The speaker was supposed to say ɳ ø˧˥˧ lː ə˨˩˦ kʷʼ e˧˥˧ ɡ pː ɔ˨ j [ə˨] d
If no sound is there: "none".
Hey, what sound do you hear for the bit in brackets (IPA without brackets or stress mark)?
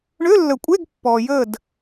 ə˦˨